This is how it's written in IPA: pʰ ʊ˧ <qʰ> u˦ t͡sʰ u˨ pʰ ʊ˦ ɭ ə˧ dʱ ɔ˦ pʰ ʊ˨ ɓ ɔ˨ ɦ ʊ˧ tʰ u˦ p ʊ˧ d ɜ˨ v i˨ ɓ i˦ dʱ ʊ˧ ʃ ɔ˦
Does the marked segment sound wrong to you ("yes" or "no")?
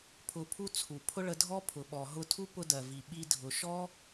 yes